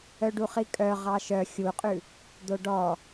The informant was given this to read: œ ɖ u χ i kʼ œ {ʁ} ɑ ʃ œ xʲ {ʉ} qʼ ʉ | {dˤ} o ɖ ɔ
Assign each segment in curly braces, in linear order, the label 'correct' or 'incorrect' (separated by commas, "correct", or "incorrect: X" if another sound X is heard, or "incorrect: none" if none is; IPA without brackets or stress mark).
correct, incorrect: u, incorrect: d̪